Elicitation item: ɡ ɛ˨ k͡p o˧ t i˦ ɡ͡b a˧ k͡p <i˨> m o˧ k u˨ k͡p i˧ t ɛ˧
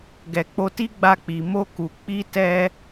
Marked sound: correct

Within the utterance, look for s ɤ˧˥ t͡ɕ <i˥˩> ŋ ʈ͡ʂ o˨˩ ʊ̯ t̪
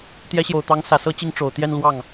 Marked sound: incorrect: i˧˥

